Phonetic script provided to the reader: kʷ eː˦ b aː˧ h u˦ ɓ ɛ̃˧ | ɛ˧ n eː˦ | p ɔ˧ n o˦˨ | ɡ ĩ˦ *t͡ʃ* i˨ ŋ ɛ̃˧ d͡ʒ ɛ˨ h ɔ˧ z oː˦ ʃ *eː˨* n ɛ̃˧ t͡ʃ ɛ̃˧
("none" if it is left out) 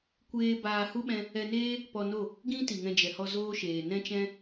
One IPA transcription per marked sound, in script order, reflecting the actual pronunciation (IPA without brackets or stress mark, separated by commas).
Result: t, eː˨